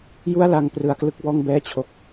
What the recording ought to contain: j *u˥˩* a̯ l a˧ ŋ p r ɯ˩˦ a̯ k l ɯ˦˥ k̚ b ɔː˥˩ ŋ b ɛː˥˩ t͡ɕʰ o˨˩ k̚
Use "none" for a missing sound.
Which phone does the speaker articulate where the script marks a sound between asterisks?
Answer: u˥˩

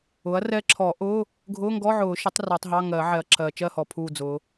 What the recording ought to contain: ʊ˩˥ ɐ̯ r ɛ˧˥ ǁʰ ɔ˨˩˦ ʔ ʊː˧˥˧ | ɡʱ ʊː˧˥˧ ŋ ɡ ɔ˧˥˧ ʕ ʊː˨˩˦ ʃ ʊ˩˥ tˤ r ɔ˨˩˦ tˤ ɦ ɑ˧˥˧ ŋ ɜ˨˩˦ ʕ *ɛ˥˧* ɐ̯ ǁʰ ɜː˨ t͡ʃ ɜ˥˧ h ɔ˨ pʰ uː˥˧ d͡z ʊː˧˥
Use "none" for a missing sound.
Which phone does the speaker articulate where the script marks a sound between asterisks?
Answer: ɛ˨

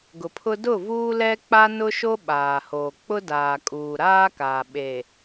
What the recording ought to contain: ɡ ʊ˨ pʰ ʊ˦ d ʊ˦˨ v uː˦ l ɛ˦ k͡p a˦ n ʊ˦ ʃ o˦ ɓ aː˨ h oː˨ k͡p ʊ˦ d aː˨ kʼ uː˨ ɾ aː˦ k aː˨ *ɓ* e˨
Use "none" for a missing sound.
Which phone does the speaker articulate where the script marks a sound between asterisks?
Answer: ɓ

